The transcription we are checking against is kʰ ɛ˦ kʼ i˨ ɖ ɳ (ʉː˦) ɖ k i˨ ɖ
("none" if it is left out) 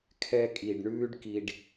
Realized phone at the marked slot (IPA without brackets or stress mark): ʉː˦